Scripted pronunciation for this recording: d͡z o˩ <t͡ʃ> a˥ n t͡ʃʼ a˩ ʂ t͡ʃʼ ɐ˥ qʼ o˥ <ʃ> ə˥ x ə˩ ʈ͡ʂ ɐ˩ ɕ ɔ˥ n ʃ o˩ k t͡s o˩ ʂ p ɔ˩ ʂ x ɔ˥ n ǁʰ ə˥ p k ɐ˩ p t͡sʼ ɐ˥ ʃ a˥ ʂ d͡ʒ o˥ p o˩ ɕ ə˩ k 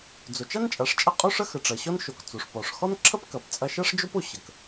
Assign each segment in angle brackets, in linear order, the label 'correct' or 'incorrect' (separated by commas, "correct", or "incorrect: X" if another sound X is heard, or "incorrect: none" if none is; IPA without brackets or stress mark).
correct, incorrect: ʂ